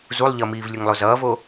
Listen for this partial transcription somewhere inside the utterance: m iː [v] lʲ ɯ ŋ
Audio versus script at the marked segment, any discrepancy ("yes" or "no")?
no